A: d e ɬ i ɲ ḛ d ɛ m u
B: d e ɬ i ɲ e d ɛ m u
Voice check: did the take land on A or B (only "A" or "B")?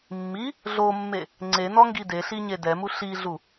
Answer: B